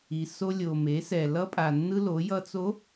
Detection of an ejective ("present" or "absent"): present